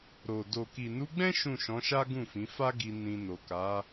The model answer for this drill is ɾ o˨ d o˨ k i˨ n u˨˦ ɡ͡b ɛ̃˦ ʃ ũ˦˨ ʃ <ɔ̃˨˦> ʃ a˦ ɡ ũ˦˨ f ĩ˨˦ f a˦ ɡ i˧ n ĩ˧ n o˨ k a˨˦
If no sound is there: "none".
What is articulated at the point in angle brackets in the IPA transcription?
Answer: ɔ̃˨˦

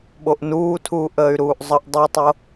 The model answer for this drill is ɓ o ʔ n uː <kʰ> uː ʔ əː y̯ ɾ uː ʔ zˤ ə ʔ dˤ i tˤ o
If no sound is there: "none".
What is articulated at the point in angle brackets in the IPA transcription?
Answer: tʰ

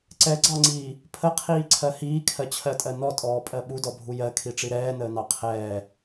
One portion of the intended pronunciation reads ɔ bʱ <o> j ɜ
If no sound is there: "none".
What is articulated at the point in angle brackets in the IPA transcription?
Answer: u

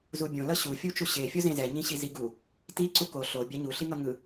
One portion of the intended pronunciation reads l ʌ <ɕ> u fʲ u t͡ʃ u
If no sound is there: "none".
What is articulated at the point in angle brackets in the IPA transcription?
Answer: ɕ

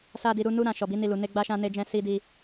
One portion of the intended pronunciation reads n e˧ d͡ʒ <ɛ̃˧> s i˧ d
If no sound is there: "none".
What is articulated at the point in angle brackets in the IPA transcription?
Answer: ɛ̃˧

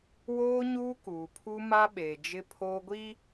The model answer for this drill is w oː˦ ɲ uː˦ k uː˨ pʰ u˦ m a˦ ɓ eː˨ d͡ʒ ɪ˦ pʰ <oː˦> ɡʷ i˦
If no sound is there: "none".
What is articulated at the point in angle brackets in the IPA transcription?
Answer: oː˦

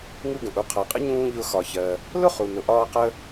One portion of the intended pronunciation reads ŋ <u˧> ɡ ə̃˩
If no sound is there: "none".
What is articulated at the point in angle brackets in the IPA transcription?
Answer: u˧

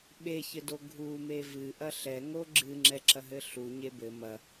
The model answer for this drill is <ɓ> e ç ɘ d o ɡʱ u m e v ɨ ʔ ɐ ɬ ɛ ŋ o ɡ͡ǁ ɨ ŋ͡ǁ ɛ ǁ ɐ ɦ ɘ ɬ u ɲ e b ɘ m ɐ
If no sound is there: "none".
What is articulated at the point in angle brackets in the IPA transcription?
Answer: ɓ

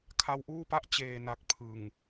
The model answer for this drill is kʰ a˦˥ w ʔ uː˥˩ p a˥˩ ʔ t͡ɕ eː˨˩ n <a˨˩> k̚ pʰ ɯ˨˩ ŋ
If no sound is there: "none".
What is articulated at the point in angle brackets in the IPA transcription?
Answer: a˨˩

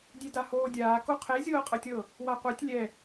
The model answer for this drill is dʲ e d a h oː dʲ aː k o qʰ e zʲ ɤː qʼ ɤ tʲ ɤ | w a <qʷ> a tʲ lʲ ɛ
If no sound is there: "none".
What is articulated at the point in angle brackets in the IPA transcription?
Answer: qʷ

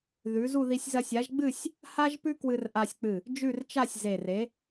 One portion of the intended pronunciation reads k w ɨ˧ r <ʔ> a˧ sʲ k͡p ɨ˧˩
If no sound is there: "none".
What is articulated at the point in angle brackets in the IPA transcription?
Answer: ʔ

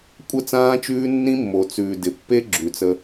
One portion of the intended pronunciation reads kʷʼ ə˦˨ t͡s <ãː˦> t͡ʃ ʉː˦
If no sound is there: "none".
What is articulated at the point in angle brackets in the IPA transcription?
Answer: ãː˦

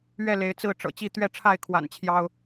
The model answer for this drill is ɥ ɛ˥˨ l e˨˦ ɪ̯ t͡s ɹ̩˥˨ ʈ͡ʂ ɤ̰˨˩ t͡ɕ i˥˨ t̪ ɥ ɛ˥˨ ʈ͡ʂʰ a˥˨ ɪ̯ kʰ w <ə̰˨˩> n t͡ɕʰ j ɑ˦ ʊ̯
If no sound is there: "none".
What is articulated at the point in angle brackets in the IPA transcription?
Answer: a̰˨˩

